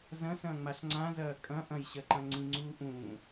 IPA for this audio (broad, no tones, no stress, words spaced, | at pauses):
zɐ̃sɐ̃ːŋ͡maɬ ŋ͡ǀãzɐː kʼɐ̃ ʔɐ̃jɕɐǃɐ̃ ŋ͡ǀĩŋ͡ǀuː ʔũː